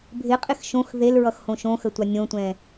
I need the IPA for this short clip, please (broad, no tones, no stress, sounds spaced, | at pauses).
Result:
bʱ ɪ qʼ ɪ x ʃ õ x ð e l ɹ ʌ x h õ ʃ õ x ə tʷ a nʲ õ tʷ ɛ̃